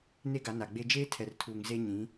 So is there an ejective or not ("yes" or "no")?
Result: no